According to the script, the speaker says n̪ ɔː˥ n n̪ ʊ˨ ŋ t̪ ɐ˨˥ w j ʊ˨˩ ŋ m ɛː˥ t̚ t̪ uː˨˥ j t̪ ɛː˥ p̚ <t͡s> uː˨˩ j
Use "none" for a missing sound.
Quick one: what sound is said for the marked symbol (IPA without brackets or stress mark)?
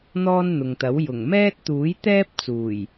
t͡s